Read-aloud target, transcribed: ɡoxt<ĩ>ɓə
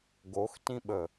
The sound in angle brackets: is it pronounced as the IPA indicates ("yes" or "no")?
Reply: yes